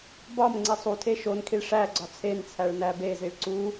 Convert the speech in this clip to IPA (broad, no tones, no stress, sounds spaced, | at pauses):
b ɒ m ŋ͡ǀ i sˤ u tʰ e ʃ o n kʰ i ɭ ʂ æ ɡ͡ǀ ɒ t͡sʰ e n t͡sʰ æ ɭ n æ b e z i ɭ ǀ u